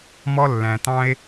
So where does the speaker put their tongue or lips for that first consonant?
lips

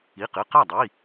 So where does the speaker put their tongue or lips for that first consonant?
uvula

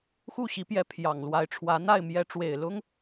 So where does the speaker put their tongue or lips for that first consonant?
velum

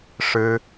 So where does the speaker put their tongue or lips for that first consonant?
retroflex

